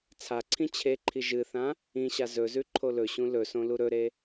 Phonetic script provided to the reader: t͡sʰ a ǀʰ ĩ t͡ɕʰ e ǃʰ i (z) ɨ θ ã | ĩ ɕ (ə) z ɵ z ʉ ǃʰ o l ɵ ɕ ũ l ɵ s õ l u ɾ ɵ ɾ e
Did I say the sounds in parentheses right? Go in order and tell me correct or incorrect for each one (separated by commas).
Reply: incorrect, incorrect